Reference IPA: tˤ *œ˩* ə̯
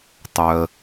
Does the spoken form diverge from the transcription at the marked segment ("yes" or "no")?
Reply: no